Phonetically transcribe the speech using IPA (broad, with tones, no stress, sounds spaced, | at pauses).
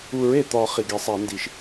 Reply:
u˨˩˦ ɹ e˩ t̪ ɒ˨˩˦ χ i˩ ɡ e˨˩˦ sˤ æ˨˩˦ n d i˨˩˦ ʃ